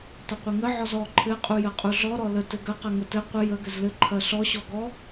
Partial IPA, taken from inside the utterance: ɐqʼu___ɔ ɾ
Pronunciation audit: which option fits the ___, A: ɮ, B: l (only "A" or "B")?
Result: A